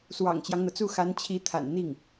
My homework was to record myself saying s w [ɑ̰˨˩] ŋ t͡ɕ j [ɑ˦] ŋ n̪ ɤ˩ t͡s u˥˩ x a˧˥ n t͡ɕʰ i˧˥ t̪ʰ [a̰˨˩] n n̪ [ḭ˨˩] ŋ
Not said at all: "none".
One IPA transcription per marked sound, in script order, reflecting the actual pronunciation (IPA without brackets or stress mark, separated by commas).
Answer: ɑ̰˨˩, ɑ˦, a̰˨˩, i˥˩